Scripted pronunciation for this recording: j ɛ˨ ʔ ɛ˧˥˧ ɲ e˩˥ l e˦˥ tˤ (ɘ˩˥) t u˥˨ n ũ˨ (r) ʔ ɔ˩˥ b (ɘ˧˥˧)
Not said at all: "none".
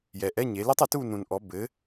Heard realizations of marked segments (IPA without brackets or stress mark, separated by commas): ɘ˩˥, n, ɘ˩˥